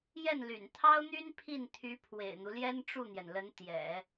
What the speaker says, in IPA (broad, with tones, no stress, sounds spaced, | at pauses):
j ɛ˥˩ n l y̰˨˩ n t̪ʰ ɑ˥ ʊ̯ n̪ y˥ n pʰ i˥˩ n t̪ʰ y˧˥ pʰ w ḛ˨˩ ɪ̯ n̪ u˦ l j ɛ˥ n ʈ͡ʂ u˥˩ n̪ j ɛ˩ n l ə˧˥ n t̪ j ɛ̰˨˩˦